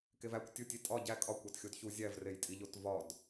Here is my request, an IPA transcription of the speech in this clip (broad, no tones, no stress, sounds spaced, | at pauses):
k e v æ kʷ tʲ u tʲ i tʼ ɒ ɟ æ kʼ ɒ kʷ æ t xʲ o d ç u zʲ æ v r e j tʼ i ʎ o t v ɒ d